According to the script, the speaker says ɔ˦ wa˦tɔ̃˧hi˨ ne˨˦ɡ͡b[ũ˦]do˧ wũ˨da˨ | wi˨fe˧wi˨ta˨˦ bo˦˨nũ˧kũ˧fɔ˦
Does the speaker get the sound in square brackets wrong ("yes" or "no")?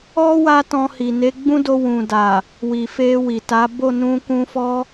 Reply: no